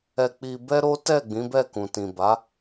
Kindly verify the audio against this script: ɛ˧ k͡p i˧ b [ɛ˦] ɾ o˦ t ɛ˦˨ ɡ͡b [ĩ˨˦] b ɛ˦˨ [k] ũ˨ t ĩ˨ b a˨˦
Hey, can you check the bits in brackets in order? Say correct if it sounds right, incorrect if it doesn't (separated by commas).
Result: correct, correct, correct